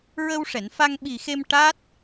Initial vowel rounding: unrounded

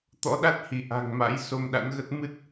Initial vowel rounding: rounded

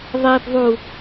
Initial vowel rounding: unrounded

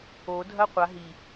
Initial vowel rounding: rounded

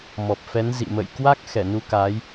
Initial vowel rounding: rounded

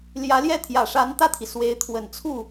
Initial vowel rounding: unrounded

